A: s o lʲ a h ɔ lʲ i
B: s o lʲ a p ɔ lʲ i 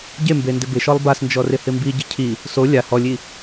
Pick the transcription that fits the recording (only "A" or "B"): A